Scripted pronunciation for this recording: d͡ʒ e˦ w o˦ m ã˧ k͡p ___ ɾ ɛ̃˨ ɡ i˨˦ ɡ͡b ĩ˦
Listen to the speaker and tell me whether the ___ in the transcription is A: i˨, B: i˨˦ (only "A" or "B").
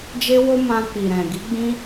A